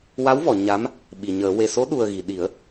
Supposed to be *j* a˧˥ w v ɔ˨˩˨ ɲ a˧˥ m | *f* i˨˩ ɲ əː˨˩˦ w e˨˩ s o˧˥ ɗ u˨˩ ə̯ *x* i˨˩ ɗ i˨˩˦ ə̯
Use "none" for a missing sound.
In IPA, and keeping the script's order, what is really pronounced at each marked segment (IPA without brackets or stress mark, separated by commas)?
w, ɓ, ɣ